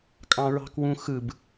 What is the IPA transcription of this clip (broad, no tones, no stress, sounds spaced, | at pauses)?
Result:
kʼ ɑ̃ ɹ ɑ̤ k w ũ x ɯ b